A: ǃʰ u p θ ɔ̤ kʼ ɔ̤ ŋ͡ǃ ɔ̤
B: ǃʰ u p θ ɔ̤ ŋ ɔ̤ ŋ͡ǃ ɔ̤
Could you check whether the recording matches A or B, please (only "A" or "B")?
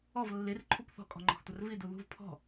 A